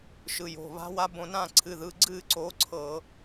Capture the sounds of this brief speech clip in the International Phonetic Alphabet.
ʃ ɯ˩˧˩ j o̤˩˧˩ β a̤˦˥ w a˦˥ b õ˧ n ãː˥˧ ǀʰ ɨ˩˧˩ ð ɯ˩˧˩ ɡ͡ǀ ɨː˥˧ ǀ o˨˥ ǀʰ ɤ˧˩˧

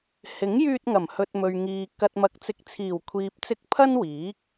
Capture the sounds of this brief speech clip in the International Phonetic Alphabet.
h ɪ˨˥ ŋ j yː˧ t̚ ŋ ɐ˨˩ m h ɵ˨ t̚ m ɵ˨ ɥ ŋ iː˨ k ɐ˨ t̚ m ɐ˨˥ k̚ t͡s ɪ˨˥ k̚ t͡sʰ iː˨˩ w kʷʰ iː˨ p̚ t͡s ɪ˧ k̚ pʰ ɐ˥ n w iː˨˥ k̚

